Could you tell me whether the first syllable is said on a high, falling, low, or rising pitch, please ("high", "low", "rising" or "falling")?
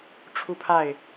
falling